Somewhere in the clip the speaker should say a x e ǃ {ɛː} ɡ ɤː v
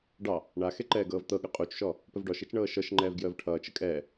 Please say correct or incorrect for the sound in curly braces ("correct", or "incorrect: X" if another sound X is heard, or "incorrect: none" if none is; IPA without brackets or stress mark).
correct